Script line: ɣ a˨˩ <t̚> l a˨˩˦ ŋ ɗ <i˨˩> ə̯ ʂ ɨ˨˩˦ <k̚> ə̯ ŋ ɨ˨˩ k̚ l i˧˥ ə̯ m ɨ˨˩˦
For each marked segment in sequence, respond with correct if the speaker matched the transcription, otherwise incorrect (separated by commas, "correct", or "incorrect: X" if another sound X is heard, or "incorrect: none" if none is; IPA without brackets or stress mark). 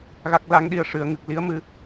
incorrect: k̚, correct, incorrect: none